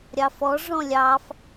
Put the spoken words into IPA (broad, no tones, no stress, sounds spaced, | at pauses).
ɾʲ ɑ f ɔ ʐ ɔ̃ lʲ ɑ f